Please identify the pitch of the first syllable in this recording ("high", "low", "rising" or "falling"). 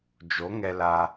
rising